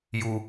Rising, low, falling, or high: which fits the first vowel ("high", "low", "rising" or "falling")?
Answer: low